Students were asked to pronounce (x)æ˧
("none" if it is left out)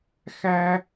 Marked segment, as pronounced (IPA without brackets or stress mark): x